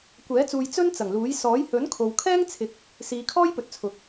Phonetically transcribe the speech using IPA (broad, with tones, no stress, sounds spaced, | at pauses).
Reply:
kʷ ɛː˨˥ t͡s uː˧ j t͡s ɵ˥ n t͡s ɐ˨˩ ŋ l uː˨˥ j s ɔː˨˥ j h ɵ˨˥ n kʰ o˨ w kʰ ɛː˥ ŋ t͡sʰ ɪ˨˥ k̚ | s iː˨˧ kʰ ɔː˥ j p ɵ˨˥ t̚ t͡sʰ ʊ˨˥ k̚